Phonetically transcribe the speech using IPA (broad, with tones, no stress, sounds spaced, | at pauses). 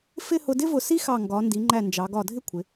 f ɪ˥˧ h ʊ˧ d ɪ˥ v ʊ˧˩ s i˥ x ɑ˧˩ ŋ ɡ ɒ˩˧ n d i˩˧ ŋ͡ǃ æ˧˩ n d͡ʒ ɑ˩˧ ɡ ɒ˧˩ dʱ ɪ˥ kʷʰ ɪ˩˧